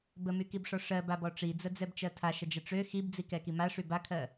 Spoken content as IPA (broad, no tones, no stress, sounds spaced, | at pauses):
b ə m y k i b ʂ ɔ ʂ ɜ b a b ɔ ʈ͡ʂ i d͡z ə d͡z ɛ b t͡ʃ ɜ tʰ a ʃ ə d͡ʒ ə ʈ͡ʂ ø x i b d͡z i k ɛ k i m a ʂ y b a kʰ ɜ